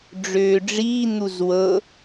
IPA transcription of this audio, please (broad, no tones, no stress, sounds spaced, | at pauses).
ɖ͡ʐ øː ɖ͡ʐ iː n̪ u z w ɤ